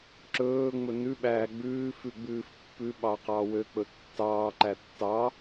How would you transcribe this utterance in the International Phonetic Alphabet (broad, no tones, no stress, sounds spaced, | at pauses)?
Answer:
ǁ ɵː ŋ͡m ɵ n ʉ ɓ æː ɡ͡b ʉː f ʉ ɡ͡b ʉː f pː ʉ ɓ ɑ q ɑː w ø k͡p ɵ tː ɑː ǃ æ tː ɑ